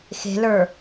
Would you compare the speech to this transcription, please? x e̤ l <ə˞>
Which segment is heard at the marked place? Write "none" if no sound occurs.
ə˞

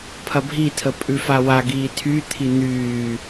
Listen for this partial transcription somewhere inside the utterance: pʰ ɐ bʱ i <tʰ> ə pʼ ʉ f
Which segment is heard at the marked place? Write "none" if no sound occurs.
tʰ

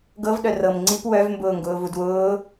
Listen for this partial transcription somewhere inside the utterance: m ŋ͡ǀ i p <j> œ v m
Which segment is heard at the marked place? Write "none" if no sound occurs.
w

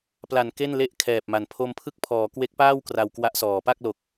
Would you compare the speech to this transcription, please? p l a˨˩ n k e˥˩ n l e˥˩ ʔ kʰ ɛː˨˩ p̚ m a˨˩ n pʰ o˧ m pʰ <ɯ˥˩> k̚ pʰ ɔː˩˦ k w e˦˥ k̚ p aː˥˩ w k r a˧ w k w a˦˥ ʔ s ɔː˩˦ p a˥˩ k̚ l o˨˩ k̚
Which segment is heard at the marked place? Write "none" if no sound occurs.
ɯ˥˩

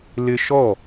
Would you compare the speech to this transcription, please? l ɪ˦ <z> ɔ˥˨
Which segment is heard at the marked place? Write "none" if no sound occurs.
ʃ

